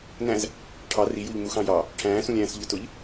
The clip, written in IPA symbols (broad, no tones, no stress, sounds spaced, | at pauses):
n æ̃ z | ʈʰ ɑ r i j u ʎ m u x ɑ̃ j ɑ | ʈʰ æ̃ː s ũ lʲ æ̃ː s ʎ ʊ t ʊ ʎ